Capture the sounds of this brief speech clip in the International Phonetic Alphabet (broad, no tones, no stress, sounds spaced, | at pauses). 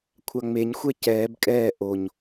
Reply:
kʷʰ a ŋ͡m e ɲ xʷ ɛ c ɛː b kʼ ɛː ʔ o ɲ